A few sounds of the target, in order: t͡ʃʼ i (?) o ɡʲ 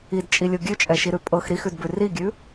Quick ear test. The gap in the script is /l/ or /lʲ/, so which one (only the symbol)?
lʲ